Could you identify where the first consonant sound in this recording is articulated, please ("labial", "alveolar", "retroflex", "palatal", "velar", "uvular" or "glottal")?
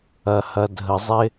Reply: glottal